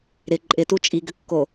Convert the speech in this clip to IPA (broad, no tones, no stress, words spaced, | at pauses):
ɾɪ ǃʼɪtu t͡ʃʼiɡʏkːo